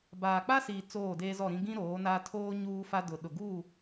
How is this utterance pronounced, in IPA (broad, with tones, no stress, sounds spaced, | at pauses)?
b aː˨ k͡p a˦ s iː˨ t͡s oː˦˨ d eː˦ z ɔ˦˨ ɾ ĩ˦ ɡ ĩ˦ ɾ oː˨˦ n aː˦ tʰ oː˦ ɲ uː˦ f a˦ d ʊ˨ ɗ ʊ˨ ɡ u˦˨